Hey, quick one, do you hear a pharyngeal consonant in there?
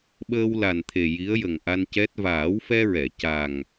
no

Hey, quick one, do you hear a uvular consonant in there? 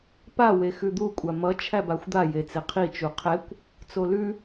yes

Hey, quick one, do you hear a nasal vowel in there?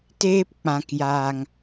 yes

